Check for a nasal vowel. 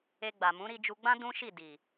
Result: present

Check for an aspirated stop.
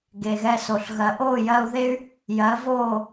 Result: absent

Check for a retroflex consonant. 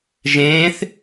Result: absent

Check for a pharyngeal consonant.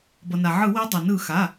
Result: present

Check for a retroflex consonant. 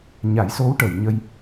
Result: present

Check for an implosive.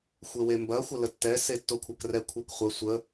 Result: absent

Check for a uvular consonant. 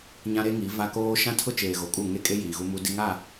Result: absent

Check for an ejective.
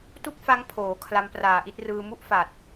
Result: absent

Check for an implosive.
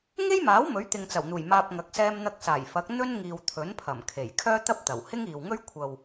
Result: absent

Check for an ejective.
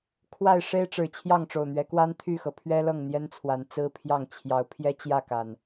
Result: absent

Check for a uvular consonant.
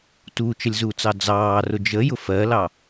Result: absent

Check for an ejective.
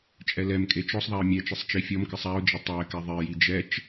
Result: present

